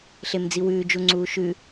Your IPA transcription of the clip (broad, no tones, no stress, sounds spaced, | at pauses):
ɬ e m d͡z i w ʉː d͡ʒ u ŋ͡ǀ uː ʃ ʉ